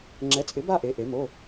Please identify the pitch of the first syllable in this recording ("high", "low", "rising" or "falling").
rising